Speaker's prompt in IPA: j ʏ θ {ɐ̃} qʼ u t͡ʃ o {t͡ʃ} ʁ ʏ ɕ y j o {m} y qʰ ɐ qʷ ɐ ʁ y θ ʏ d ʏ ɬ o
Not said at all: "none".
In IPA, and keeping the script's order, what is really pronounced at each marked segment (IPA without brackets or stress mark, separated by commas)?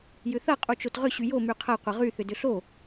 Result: ɐ, t, m